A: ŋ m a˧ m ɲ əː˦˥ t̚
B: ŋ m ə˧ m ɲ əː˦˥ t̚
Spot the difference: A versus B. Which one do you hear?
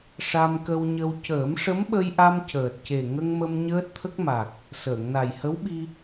B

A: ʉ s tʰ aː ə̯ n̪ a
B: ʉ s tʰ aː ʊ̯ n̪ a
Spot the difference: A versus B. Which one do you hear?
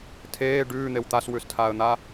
A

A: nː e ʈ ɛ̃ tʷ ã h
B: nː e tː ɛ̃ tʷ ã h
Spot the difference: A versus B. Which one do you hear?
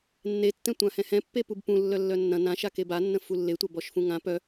B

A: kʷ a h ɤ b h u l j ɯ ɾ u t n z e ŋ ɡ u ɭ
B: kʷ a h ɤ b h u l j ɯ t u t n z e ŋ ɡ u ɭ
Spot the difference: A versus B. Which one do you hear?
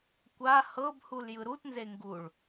A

